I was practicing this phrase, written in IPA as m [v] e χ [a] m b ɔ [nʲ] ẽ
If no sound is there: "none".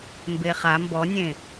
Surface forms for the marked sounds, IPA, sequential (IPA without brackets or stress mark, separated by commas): b, a, nʲ